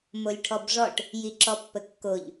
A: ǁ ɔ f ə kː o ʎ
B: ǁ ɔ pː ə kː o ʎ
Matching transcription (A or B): B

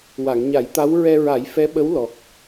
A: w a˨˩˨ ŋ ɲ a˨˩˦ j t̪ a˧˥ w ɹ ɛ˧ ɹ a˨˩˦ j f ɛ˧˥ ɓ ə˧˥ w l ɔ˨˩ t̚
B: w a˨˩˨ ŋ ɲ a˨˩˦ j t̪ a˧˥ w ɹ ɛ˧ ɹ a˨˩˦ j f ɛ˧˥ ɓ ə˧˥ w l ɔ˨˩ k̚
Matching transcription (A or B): B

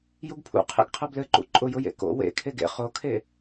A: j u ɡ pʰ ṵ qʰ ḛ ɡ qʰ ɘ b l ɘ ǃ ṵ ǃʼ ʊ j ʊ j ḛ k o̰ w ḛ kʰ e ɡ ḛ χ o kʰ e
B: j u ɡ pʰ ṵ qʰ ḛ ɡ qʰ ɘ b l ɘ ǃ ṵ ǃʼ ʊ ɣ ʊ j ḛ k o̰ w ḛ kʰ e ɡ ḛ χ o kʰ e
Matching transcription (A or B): A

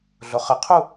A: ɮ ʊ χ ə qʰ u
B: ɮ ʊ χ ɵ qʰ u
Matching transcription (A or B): A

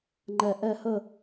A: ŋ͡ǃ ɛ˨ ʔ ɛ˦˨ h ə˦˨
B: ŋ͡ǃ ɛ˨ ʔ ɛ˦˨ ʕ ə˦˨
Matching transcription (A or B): A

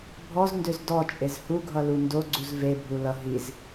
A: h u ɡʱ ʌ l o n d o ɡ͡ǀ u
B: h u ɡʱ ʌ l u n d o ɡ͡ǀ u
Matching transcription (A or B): B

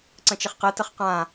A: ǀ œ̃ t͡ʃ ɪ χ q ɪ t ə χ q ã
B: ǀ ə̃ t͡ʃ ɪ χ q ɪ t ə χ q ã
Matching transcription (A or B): B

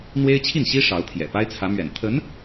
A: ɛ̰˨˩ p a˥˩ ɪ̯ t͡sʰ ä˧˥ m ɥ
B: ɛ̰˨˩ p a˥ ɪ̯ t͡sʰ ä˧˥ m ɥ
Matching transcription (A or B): B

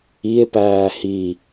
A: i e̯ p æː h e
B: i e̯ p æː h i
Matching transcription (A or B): B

